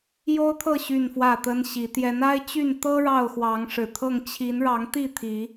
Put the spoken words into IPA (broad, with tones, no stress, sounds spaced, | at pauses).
j o˦ ʊ̯ t̪ʰ ɤ˥˨ ɕ y˥˨ n f w ä˥˨ t̪ ə˦ n ɕ i˨˦ t̪ j ɛ˨˦ n a˦ ɪ̯ t͡ɕ y˥˨ n t̪ ɤ˦ ɻ ɑ˥˨ ʊ̯ x w ɑ˨˦ ŋ ʂ ɻ̩˨˩ t̪ʰ ɤ˥˨ ŋ t͡ɕʰ i˨˦ n ɻ ɑ˨˦ ŋ t̪ i˥˨ t̪ʰ i˨˦